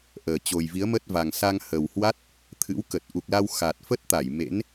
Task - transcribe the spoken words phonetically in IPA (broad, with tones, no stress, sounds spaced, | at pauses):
ʔ əː˨˩ t͡ɕ o˨˩ j v i˨˦ ə̯ m ə˦˥ t̚ v a˨˩ ŋ s a˧ ŋ h ə˨˩ w h w a˦˥ t̚ | t̪ʰ ɨ̰˧˥ w k ə˨˩ t̚ ʔ u˨˩ k̚ l a˧ w x a˨˩ t̚ f ə˦˥ t̚ t̪ a˧˩ j m ḛ˧˥ n